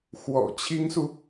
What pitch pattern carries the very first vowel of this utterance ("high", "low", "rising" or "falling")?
low